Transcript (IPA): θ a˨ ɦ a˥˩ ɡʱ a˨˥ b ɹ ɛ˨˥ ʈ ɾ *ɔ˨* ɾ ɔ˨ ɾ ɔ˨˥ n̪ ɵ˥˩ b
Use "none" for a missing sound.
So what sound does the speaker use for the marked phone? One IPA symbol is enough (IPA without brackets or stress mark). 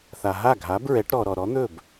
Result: ɔ˨